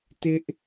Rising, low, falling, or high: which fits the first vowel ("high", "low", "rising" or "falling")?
high